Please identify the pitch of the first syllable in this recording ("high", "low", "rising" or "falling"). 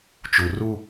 low